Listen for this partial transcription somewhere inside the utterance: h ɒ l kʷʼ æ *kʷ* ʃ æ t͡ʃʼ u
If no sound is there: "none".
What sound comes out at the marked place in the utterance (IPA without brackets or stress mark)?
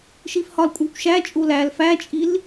kʷ